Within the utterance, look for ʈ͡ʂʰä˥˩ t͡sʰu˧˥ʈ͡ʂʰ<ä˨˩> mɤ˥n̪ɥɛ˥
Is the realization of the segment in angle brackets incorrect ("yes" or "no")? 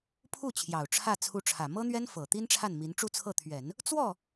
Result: no